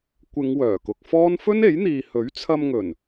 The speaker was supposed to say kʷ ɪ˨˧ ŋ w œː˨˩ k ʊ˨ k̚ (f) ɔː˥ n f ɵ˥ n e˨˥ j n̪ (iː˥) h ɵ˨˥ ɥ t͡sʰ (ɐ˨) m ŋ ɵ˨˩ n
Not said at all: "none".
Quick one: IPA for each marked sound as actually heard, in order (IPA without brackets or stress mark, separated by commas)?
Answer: f, iː˨, ɐ˧